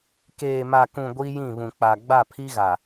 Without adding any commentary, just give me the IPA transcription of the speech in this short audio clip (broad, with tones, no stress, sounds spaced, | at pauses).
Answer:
k eː˨ m a˨ k ũ˨ ɡʷ i˦ j ĩ˦˨ β ũ˨ k͡p a˨ ɡ͡b a˦˨ pʰ i˦ ɣ a˨